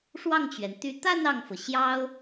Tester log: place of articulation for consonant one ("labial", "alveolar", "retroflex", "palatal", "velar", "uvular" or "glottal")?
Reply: retroflex